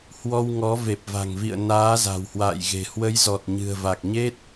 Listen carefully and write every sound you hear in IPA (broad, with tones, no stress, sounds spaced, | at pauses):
h w ɔ˧ w ŋ ɔ˨˦ v e˨˩ p̚ v a̤˨˩ ŋ v ḭ˧˨ ə̯ n aː˨˦ z a̤˨˩ w h w a̰ː˧˨ j ɣ e̤˨˩ h w ə˨˦ j z ɔ˨˩ t̚ ɲ ɨ̤˨˩ ə̯ v a˨˩ k̚ ɲ e˦˥ t̚